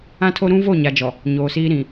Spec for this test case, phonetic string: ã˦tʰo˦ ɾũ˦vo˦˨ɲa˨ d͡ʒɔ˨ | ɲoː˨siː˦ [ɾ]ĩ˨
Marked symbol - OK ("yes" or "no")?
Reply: yes